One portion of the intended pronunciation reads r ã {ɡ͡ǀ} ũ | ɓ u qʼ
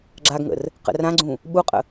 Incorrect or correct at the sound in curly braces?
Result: correct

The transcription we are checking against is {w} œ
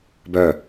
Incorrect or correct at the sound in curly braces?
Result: incorrect: b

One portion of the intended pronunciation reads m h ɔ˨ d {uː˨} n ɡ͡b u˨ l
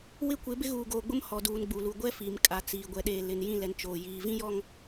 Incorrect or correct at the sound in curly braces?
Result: correct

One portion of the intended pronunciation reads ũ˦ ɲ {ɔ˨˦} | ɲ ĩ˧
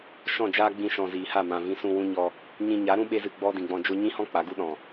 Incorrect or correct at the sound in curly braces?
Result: incorrect: ɔ˧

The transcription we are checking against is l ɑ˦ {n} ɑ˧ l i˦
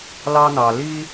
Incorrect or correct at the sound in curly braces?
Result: correct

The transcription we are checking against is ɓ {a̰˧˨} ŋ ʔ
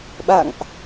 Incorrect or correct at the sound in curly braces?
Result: correct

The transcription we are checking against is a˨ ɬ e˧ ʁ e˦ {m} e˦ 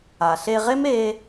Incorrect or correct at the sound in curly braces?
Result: correct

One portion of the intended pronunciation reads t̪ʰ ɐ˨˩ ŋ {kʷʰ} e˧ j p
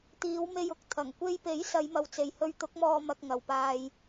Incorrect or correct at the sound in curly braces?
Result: incorrect: kʷ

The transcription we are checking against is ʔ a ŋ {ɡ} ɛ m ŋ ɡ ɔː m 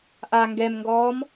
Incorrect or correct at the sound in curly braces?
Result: correct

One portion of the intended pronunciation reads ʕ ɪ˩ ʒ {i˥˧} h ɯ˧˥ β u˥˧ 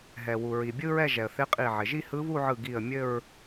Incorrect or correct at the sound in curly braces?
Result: correct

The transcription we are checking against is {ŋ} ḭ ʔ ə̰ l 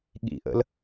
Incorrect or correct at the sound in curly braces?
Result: incorrect: ɠ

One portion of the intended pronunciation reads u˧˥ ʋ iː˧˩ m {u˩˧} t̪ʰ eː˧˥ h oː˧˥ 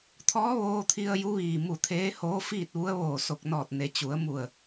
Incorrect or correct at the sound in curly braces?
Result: incorrect: u˧˩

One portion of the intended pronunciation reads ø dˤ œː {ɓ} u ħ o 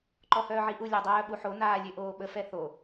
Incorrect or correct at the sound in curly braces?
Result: correct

